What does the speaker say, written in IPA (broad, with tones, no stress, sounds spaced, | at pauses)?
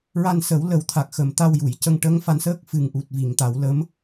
ɹ a˧ n s ə˨˩˦ w l ə˨˩˦ w t̪ʰ a˨˩ k̚ x ə˨˩ m t̪ a˧ w j u˨˩˨ j c ə˧ ŋ ʈ ə˧˥ ŋ f a˧ n s əː˦˥ k̚ f ɨ˨˩ ŋ ʔ u˨˩ t̚ v i˨˩˨ ŋ t̪ a˨˩˦ w l ə˧˥ m